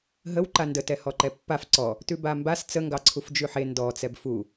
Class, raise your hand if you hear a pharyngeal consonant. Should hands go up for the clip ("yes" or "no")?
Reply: yes